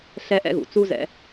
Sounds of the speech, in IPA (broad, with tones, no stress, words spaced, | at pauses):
ɬɛ˥ʔɛ̰˥ɣṵ˩ t͡su˥ zɛ̰˥